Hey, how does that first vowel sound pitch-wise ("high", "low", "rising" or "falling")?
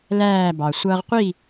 falling